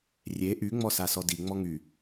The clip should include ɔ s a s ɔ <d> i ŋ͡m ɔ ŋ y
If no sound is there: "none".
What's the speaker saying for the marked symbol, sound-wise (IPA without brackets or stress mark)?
d